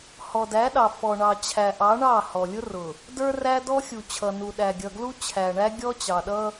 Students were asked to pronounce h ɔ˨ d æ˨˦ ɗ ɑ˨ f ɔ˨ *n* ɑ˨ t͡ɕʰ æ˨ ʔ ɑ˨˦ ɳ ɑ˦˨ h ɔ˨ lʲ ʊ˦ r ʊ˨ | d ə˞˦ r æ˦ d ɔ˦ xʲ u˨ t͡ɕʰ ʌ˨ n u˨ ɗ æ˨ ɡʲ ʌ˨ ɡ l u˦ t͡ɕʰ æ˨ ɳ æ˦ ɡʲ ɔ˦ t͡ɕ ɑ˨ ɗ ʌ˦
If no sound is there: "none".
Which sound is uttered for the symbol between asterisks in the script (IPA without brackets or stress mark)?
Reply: ɳ